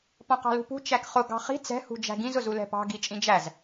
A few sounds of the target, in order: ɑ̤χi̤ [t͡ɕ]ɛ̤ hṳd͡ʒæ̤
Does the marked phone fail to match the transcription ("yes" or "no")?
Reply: yes